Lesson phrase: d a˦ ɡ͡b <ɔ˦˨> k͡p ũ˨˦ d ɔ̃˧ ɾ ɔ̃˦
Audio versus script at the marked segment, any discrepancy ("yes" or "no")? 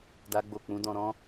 yes